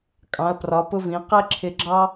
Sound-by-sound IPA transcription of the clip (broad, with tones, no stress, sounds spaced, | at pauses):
kʼ ɑ̃˩˧ ɐ̯ p r ɒ˩˧ p ʊ˧ v ĩ˩˧ q ɛ˥ ǁʰ ɪ˧ ɡ͡ǁ ɑ˥